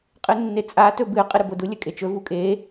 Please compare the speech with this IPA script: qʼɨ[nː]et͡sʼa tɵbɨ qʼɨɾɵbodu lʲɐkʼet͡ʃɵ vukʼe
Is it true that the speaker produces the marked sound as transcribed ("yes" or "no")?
yes